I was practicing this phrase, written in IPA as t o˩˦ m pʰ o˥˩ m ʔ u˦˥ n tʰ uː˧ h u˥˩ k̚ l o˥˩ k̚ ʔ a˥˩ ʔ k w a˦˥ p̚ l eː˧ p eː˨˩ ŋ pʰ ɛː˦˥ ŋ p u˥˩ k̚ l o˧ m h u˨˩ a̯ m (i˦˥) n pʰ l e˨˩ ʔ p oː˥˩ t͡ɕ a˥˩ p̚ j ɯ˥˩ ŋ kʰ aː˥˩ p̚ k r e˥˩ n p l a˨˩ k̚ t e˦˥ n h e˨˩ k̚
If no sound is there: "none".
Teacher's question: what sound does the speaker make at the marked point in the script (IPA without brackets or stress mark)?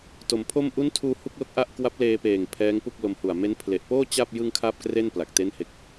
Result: e˦˥